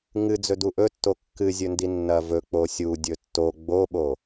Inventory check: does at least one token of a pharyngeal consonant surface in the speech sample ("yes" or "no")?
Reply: no